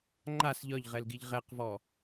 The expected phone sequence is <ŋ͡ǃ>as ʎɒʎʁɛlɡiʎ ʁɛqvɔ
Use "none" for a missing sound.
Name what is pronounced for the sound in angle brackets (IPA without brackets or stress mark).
ŋ͡ǃ